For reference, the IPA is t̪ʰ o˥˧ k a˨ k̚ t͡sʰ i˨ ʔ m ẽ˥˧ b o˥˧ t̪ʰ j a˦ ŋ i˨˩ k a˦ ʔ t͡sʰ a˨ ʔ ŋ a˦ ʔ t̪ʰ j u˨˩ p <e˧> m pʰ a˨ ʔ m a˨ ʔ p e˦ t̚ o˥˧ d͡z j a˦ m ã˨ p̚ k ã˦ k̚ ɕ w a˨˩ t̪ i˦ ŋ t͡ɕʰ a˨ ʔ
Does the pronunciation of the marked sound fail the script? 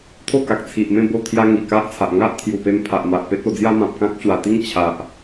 no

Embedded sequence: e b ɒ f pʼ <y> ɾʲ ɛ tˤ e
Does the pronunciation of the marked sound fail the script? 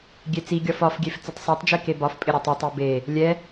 yes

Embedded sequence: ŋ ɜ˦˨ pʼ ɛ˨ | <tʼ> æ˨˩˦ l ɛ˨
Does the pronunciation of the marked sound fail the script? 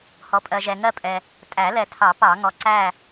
no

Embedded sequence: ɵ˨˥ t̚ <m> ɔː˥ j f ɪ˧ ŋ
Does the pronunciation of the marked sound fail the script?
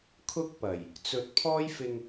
yes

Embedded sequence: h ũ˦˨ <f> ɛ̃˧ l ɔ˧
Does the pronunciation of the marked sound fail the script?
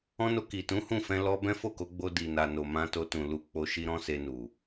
no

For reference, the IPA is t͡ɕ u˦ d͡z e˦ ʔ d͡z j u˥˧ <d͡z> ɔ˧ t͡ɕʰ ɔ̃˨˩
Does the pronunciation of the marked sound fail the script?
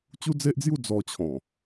no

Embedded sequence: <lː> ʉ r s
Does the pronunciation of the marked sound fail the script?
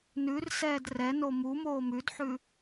yes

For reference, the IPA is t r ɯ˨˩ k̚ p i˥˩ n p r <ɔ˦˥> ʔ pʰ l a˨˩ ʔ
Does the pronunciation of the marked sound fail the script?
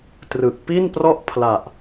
yes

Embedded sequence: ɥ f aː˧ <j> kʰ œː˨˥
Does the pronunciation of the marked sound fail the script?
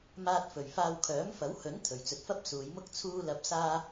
yes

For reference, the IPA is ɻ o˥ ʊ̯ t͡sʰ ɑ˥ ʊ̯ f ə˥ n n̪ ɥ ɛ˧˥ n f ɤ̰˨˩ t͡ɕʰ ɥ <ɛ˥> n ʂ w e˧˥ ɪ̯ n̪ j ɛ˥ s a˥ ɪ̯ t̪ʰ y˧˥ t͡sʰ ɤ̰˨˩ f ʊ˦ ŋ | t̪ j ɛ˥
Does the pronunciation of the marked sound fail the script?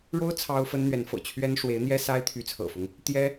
no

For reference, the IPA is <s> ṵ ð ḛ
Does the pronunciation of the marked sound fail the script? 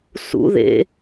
no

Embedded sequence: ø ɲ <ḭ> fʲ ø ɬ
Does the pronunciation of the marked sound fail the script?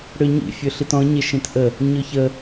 no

